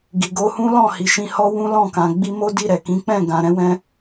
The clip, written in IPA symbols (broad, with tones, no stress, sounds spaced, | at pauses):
ɡ i˨ ɡ o˧ h ũ˦ l ɔ̃˦˨ h i˨ ʃ ĩ˧ h ɔ˦ w ũ˦ l ɔ̃˦˨ k ã˨ ɡ͡b i˧ m o˦ d i˦˨ ɾ ɛ˨ k ĩ˨˦ k͡p ɛ̃˦˨ ɡ ã˨ ɾ ɛ̃˧ w ɛ̃˧